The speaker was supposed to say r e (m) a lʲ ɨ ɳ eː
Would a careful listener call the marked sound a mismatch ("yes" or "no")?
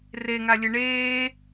yes